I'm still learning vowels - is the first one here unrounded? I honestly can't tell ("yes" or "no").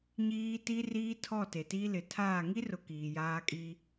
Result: yes